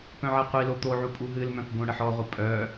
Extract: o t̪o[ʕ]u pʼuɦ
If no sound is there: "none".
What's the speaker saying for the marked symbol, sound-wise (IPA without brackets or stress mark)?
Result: ʕ